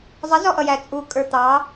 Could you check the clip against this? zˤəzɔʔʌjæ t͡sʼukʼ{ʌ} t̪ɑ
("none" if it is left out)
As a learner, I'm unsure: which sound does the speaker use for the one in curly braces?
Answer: ə˞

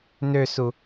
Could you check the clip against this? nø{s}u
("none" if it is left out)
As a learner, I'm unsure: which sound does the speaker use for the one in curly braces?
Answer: s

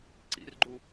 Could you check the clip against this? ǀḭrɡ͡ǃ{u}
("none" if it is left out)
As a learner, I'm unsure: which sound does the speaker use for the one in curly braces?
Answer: u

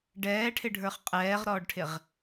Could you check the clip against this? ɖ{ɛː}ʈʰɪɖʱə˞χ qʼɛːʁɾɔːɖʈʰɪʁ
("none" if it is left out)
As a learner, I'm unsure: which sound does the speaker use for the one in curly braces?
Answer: ɛː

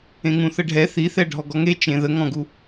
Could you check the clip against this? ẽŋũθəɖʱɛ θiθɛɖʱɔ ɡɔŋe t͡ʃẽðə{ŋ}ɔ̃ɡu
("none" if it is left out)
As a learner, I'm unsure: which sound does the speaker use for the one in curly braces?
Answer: ŋ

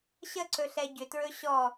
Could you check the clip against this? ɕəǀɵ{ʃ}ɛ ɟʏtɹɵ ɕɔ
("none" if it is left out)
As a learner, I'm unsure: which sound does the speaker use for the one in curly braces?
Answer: ɬ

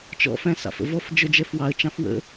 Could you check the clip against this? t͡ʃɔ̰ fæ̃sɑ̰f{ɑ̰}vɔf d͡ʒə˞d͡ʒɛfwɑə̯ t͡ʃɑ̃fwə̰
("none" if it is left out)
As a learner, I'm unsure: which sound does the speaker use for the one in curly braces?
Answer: ə̰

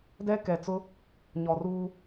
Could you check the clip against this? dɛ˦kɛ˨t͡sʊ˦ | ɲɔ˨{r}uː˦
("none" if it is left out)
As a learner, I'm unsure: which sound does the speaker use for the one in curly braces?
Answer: r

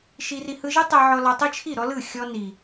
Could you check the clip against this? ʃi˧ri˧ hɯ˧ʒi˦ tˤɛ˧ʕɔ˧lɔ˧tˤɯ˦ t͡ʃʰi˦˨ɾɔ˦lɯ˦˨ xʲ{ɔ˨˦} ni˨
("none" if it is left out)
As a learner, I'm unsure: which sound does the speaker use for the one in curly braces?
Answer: ɔ˧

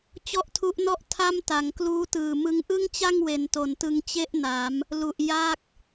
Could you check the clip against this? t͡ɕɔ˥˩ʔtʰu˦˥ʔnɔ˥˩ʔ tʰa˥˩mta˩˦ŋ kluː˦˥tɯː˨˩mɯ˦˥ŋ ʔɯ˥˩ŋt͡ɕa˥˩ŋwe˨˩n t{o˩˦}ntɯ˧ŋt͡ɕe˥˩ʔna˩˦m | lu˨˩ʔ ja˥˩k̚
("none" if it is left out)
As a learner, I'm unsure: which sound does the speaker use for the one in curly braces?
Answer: o˨˩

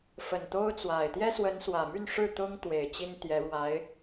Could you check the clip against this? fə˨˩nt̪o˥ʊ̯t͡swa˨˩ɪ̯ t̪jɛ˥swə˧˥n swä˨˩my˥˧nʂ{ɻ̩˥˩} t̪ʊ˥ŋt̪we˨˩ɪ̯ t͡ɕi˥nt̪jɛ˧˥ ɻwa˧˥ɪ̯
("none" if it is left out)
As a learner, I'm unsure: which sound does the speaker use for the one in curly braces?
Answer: ɻ̩˥˩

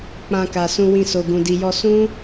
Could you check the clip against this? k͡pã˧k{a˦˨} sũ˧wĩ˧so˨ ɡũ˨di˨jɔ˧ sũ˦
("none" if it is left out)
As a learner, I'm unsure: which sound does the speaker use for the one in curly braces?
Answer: a˨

